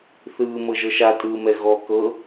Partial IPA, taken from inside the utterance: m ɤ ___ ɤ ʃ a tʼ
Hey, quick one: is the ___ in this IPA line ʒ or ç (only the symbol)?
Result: ʒ